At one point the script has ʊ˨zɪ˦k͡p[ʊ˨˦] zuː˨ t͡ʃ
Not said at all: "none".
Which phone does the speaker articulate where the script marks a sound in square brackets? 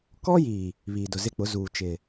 ʊ˨˦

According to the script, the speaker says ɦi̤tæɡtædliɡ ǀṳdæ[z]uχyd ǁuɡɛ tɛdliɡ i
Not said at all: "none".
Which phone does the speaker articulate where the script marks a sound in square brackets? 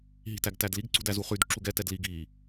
z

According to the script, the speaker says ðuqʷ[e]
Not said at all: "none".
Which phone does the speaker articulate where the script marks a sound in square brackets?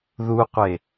e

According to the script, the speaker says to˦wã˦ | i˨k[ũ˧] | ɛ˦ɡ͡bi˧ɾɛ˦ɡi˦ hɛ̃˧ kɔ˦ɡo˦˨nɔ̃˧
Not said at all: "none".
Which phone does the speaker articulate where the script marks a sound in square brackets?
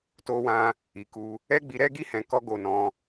u˧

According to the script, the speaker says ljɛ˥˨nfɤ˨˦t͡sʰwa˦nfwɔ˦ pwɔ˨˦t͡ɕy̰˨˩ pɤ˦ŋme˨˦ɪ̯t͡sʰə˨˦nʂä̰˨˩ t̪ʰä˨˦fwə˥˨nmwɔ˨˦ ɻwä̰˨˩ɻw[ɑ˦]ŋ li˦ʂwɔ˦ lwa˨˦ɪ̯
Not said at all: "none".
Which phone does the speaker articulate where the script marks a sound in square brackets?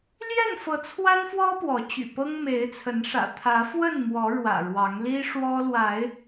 ɑ˨˦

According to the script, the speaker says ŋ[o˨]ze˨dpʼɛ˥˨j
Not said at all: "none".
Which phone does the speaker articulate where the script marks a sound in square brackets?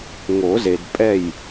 o˨˩˦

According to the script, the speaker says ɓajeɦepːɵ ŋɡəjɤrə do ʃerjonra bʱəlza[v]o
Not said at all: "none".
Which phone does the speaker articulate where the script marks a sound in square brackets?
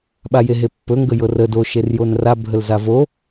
v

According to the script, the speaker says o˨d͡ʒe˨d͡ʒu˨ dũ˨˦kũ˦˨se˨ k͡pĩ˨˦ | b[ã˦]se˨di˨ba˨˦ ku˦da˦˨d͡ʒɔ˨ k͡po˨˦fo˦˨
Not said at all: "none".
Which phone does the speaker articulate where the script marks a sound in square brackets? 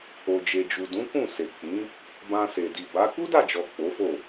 ã˧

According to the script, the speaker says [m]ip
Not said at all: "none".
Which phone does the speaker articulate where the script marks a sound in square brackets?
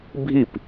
bʱ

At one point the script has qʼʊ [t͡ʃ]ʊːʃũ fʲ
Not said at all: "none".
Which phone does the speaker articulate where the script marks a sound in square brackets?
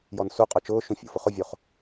t͡ʃ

